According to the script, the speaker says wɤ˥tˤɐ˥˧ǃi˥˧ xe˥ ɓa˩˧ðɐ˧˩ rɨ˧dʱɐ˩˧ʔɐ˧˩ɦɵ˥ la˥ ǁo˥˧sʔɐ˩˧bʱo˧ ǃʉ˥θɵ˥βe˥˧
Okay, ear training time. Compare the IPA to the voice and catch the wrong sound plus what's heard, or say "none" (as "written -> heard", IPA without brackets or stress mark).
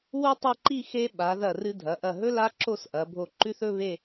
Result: ɤ˥ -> o˥